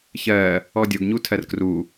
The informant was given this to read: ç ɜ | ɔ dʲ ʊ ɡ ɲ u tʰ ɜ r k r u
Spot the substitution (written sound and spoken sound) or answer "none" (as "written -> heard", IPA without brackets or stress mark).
none